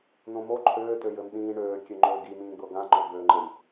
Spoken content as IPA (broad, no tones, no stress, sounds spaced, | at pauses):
n õ m o ǃʰ øː t ø j ɘ m ɗ ĩː ɳ øː kʲ ø ŋ͡ǃ øː ɡ i m ĩː ɡ͡b ɤ ɡ ã ŋ͡ǃ o ɡ͡b øː ŋ͡ǃ ɘ j